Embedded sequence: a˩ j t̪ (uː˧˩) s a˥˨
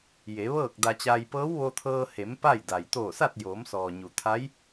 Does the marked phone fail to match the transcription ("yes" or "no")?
yes